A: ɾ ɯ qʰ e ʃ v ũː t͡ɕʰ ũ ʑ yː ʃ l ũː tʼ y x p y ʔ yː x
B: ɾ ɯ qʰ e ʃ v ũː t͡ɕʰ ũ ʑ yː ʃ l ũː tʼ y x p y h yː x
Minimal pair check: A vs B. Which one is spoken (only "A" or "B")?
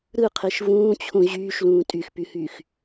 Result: B